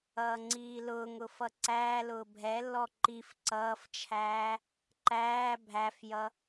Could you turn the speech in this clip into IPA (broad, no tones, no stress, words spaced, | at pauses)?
ʌːŋ͡ǀiːlʊːŋʊ fʌǀæːlʊː bʱɛlːɔ ǃif ǀʌːft͡ʃʰæː | ǃæː bʱæfjʌ